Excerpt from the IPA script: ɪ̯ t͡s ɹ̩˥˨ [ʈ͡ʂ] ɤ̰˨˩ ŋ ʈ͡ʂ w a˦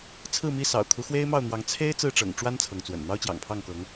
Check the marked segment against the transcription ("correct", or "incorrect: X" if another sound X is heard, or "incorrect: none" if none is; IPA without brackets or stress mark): correct